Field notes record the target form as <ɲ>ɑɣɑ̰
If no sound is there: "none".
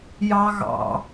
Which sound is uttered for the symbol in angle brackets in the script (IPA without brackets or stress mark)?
j